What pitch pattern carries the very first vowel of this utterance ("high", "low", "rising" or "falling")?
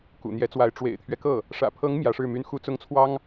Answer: low